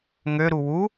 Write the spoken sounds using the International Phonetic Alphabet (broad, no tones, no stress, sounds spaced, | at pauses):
ŋ ø ɾ u w u